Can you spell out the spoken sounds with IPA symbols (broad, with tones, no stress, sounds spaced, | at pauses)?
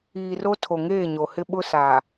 iː˨ r o˦ tʰ o˨ ŋ eː˦˨ ɲ o˨ h ɪ˦ ɓ ʊ˦ s aː˨